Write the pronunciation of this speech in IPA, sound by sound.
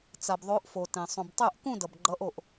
t͡s a˩ b ðˤ o˨˦ ʔ f o˩ t ẽ˩ sˤ ũ˩ b tˤ ɛ˥˧ ʔ k ũ˥˧ d ʌ˩ b ɡ͡ǃ ʌ˨˦ ʔ o˩ ʔ

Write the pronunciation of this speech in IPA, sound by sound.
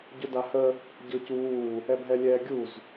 ɟ ʊ d a h ə | ɟ ɤ c uː | ɛ bʱ ɛ lʲ ɛː ɡʲ u z

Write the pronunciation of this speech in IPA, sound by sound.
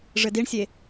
ʐ ɘ d i ɳ sʲ e

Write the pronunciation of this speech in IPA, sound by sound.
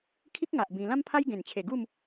kʰ i˦ k̚ ŋ a˨ ʔ b ĩ˧ l ã˦ m pʰ a˦ j ɡ ẽ˨˩ n t͡ɕʰ e˨˩ ɡ u˥˧ m

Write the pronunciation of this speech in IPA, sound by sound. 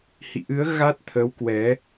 h ḭ˧˨ ʔ ɨ˨˦ ə̯ ɣ a˦˥ t̚ t̪ʰ ə˨˦ w k w ɛ˨˦

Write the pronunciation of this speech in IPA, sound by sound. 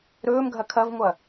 ɾ ɵː m ɡʱ ɐ kʰ ɐ v ŋʷ ɐ

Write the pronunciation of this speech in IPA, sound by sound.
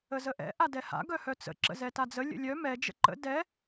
ə z ə ʔ ɛ̰ ʔ a d ɛ h a̰ ɡ œ h œ t͡s ə̰ ǁ ə̰ z ɛ t a d͡z ə lʲ ə̰ lʲ œ m ɛ d͡ʒ ə̰ ǃ ə̰ d ɛ

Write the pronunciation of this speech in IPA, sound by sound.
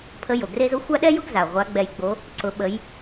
pʰ ə˧˥ j o˩ ɡ r e˥ z o˧˥ xʷ a˥ ɗ ɛ˥ j ʊ˥ ɡ z a˩ ʁʷ a˧˥ ɡ͡b ɛ˧ j ɡ͡b o˧˥ | ǀ ʊ˩˧ ɓ ə˩˧ j

